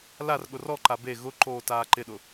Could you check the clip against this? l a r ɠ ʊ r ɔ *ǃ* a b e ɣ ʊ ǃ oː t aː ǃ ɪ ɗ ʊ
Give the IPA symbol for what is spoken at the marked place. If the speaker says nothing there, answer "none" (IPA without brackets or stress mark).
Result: ǃ